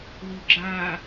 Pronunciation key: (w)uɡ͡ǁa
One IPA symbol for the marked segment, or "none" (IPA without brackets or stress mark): w